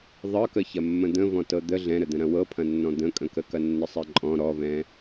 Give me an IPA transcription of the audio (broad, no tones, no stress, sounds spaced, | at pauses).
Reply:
ðˤ ɤ k ə ç ɐ mː ə̃ d̪ ə̃ v ɔ̃ t ɤ d̪ ə ɮ ɛ̃ ɾ ə d̪ ə̃ ɾ ɐ̃ w ɤ pʰ ɐ̃ nː ɔ̃ d̪ ə̃ kʼ ə̃ k ə k ɐ nː ə sˤ ɛ ǃʼ ɔ̃ ɾ ɔ v ɛ̃